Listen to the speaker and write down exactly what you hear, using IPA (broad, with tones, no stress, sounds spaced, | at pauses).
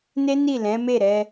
n e˦ n i˦˨ l ɛ̃˨˦ m e˦˨ ɾ ɛ˧